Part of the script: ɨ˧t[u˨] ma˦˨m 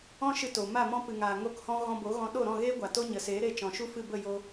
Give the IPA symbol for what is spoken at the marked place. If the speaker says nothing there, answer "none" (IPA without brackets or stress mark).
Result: o˨